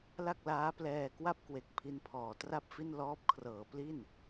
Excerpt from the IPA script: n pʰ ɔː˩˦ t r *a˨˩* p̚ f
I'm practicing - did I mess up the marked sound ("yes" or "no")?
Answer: yes